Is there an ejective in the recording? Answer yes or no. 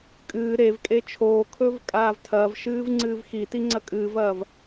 yes